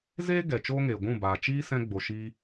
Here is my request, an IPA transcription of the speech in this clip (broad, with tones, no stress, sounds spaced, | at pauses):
z eː˦ ɡ ɛ˨ t͡ʃ oː˦ ŋ eː˨ ɡʷ ũ˦˨ b aː˨ t͡ʃ iː˦ s ɛ̃˦ ɡ͡b o˨ ʃ i˧